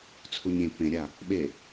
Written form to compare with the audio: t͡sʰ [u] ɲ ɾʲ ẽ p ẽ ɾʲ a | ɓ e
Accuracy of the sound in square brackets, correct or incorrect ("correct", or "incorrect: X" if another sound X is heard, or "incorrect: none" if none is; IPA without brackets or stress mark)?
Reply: correct